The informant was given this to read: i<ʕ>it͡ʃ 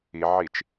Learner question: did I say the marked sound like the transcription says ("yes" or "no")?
yes